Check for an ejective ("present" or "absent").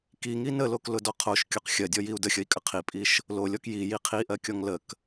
present